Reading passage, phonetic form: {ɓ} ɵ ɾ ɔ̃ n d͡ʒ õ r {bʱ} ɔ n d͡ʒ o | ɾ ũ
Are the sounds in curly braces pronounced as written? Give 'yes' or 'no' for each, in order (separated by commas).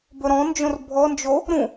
no, yes